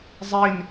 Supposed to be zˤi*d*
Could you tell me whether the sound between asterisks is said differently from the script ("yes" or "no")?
yes